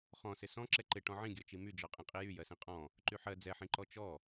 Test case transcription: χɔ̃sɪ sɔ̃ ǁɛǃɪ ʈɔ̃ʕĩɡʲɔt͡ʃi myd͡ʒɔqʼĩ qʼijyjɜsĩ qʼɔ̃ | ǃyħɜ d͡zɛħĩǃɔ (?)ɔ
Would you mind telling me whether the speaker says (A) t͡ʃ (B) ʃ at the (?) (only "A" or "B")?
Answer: A